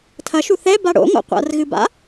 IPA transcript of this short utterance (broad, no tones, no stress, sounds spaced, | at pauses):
tʰ ɐ ʃ u θ ɛ b a ɽ o̰ ŋ o̰ qʷ a̰ r ɣ ɨ b a̰